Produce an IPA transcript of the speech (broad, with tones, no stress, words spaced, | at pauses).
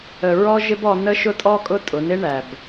ə˨ɹɔ˦ʒɪ˦b ɔ˦ nə˦ʃʊ˦tʼɔ˦kʼʊ˦ tʼʊ˨˦nɪ˦ ɳæ˨b